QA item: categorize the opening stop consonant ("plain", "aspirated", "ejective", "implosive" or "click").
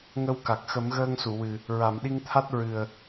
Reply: plain